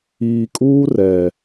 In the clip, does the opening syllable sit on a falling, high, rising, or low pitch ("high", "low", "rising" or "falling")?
low